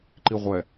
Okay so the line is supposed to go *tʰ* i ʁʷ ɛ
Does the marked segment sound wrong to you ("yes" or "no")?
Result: yes